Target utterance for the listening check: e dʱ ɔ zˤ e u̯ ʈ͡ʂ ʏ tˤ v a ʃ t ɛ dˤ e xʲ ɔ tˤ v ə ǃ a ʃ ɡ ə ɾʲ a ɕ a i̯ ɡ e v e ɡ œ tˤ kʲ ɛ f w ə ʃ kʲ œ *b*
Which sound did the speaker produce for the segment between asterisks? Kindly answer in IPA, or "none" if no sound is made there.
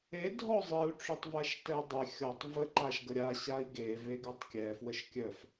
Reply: f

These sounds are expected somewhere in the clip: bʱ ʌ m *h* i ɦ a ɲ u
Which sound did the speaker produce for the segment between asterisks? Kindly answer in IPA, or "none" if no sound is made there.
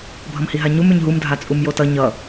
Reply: h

